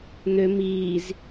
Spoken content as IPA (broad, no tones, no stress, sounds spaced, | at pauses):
n̪ ø m iː z